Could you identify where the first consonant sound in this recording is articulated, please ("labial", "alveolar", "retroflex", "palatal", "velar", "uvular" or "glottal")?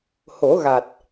glottal